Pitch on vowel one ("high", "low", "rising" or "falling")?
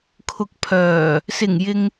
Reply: low